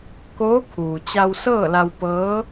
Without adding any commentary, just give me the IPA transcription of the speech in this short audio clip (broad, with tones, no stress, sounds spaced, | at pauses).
k oː˧˥ kʰ uː˩ t͡ɕ a˧ w s ɤː˥˨ l a˧ w p ɤː˧˥